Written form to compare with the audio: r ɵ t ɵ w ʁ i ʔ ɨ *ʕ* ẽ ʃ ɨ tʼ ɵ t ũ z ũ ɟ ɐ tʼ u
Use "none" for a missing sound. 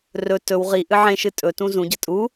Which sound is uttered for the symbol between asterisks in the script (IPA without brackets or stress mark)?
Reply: ʕ